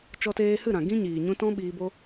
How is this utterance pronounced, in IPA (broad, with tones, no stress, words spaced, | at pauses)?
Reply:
t͡ʃɔ˧teː˧hɨ˦˨ɾã˨ ɡĩ˦ɲiː˨ɲũ˧tɔ̃˦ ɓiː˧bo˦